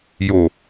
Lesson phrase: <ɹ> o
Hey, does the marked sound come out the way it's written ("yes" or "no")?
no